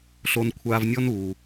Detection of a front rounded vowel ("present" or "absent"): absent